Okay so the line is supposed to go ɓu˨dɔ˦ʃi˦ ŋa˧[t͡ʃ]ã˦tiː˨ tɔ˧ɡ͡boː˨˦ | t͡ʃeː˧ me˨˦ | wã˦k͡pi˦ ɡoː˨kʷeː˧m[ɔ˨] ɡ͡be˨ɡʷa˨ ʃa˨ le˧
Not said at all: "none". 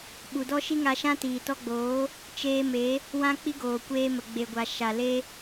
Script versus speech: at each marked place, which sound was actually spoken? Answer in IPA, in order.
ʃ, ə˨

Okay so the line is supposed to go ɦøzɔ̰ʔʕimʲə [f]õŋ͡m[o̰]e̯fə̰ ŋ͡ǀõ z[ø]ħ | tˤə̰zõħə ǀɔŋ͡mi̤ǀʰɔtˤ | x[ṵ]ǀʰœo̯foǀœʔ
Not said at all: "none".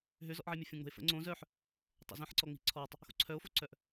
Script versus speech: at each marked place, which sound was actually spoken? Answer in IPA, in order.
fʲ, o̤, œ, o̰

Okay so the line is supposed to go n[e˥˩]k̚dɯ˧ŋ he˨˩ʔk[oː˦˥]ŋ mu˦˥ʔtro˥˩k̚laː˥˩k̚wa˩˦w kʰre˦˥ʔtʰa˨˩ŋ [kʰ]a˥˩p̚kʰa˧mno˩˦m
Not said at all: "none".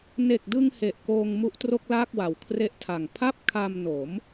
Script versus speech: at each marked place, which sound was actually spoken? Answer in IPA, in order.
e˨˩, oː˧, pʰ

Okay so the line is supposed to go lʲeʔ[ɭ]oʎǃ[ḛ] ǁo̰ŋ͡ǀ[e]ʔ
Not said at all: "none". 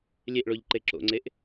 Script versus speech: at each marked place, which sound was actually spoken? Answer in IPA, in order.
ɭ, e, e

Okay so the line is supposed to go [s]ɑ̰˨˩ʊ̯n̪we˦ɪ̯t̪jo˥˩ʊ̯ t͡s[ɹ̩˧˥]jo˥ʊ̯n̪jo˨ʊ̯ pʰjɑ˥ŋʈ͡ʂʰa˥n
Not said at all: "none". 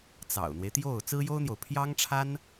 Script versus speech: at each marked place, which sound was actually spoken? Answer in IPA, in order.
t͡s, ɹ̩˥

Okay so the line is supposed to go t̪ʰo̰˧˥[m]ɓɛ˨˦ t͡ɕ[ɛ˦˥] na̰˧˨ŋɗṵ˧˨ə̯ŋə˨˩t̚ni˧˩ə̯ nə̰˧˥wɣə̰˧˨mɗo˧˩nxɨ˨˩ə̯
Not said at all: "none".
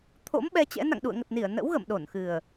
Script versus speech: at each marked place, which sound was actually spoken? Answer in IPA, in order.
m, ɛ̰˧˥

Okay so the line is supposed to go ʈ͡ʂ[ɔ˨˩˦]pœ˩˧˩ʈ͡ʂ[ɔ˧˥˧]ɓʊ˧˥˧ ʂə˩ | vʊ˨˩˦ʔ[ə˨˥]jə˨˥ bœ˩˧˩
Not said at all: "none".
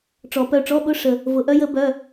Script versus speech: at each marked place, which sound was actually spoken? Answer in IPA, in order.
ɔ˨˩˦, ɔ˧˥˧, œ˨˥

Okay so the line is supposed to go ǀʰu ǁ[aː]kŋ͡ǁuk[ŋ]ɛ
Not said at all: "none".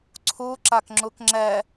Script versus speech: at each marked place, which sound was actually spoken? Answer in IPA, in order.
a, ŋ͡ǁ

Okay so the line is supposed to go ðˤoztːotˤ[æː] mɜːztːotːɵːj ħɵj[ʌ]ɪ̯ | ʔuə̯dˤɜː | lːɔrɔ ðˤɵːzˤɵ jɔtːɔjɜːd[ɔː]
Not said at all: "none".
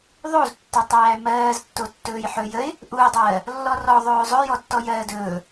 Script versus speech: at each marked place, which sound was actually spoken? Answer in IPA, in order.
æː, ə, ɵː

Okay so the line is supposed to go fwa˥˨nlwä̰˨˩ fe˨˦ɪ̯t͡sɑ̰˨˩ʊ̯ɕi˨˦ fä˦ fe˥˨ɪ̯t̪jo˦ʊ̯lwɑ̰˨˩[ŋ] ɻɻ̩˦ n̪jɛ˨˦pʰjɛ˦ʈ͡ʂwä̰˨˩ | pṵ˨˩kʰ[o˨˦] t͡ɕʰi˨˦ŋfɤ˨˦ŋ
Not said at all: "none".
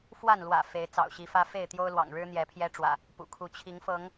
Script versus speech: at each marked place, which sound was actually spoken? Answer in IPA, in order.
ŋ, u˨˦

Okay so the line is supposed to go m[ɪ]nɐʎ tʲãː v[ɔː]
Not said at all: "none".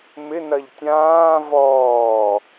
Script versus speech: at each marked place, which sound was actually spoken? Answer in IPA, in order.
ɪ, ɔː

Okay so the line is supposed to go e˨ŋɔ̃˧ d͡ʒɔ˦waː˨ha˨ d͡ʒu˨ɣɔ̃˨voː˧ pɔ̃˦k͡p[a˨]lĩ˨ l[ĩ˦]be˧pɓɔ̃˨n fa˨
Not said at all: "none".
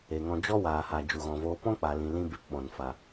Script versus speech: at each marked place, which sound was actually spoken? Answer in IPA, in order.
a˨, ĩ˦

